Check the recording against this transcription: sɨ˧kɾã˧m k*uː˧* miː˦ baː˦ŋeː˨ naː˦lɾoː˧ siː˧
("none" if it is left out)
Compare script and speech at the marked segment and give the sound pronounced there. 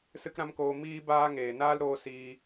oː˧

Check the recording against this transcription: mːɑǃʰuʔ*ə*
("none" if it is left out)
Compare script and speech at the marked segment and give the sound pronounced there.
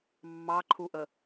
ə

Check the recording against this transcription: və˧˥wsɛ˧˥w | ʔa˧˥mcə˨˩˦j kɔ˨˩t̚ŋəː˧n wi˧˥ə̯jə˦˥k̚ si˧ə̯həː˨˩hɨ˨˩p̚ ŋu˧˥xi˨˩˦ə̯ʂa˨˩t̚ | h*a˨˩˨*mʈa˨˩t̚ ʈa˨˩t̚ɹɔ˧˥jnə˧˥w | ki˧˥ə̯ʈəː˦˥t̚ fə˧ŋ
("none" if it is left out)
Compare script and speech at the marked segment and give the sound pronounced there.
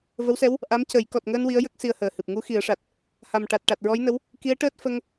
a˨˩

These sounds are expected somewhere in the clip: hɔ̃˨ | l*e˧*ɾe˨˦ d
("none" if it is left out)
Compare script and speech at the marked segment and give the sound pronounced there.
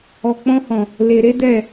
e˨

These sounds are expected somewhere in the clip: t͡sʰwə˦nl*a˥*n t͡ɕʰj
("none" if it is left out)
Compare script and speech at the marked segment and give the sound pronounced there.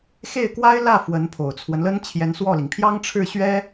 ə˥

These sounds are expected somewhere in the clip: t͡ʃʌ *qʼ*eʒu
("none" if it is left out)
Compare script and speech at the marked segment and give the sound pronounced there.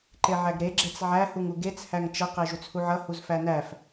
q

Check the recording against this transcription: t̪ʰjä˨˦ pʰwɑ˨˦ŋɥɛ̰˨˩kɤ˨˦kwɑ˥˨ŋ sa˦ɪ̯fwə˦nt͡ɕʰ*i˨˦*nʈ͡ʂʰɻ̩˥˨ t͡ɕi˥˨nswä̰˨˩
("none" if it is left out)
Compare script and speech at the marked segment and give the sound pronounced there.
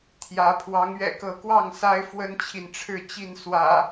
i˨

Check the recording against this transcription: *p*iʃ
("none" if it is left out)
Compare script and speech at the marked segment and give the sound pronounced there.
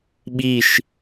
ɓ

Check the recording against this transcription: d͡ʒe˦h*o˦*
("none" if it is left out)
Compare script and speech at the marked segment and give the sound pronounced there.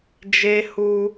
u˦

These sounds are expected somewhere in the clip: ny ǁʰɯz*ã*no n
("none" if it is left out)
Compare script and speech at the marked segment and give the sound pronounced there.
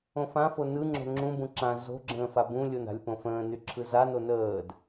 a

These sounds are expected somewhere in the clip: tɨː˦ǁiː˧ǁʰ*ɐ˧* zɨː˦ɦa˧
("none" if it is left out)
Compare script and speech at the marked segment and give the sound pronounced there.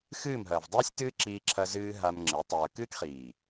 ɐ˧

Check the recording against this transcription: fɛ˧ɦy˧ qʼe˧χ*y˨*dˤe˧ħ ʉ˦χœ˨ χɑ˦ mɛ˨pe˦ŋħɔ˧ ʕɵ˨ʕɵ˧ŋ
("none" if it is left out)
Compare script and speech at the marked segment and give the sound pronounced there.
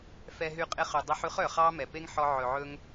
y˨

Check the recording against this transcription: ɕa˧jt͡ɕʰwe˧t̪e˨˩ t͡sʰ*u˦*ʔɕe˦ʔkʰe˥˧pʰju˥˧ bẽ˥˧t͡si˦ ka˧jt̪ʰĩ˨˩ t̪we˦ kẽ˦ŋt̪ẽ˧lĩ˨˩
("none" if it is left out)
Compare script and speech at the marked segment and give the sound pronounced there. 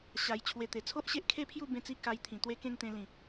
o˦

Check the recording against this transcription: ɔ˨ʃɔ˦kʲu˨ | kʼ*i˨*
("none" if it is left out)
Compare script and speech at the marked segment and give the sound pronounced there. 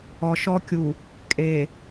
e˨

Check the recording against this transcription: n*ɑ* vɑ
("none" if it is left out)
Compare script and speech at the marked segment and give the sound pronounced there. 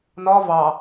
ɒ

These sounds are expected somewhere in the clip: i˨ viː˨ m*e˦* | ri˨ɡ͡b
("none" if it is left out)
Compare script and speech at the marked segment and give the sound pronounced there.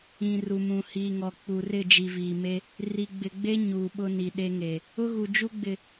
e˦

